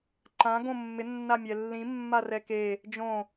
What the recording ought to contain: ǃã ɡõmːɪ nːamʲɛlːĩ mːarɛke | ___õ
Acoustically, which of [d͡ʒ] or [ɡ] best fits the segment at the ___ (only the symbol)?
d͡ʒ